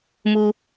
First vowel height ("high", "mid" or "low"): high